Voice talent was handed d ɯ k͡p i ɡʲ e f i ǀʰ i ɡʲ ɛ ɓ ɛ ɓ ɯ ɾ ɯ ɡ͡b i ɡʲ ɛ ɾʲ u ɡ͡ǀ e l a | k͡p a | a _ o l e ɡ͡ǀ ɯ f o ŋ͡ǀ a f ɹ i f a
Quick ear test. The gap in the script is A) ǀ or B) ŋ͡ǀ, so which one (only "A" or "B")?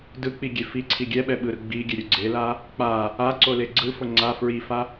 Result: A